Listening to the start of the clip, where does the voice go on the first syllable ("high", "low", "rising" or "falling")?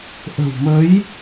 low